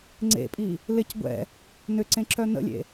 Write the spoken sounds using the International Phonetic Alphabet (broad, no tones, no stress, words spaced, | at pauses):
ŋ͡ǀḛpʼi | lɪc ɡʷɛ̰ | nʏǀẽǁœ nə̰lʲḛ